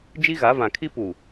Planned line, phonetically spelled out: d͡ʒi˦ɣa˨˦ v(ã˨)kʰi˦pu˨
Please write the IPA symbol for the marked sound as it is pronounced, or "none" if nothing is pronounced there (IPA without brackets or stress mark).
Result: ã˨